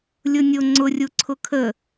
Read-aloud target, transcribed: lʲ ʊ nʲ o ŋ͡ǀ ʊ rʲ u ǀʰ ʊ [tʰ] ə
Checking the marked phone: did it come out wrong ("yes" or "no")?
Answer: yes